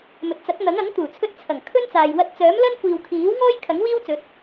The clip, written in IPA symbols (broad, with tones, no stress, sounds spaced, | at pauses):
m ɵ˨ t̚ t͡s ɐ˨˥ k̚ n̪ ɐ˨˥ ŋ ɐ˨˥ ŋ t̪ uː˨˩ t͡sʰ ɵ˧ t̚ t͡sʰ ɐ˨˩ ŋ kʰ ɵ˥ n t͡s aː˨ j w ɐ˧ t̚ t͡s œː˨˥ m l ɐ˥ n kʷ iː˨ w kʰ iː˨˥ w ŋ ɔː˥ j kʰ ɐ˨˥ ŋ w iː˥ w t͡s ɵ˨˥ t̚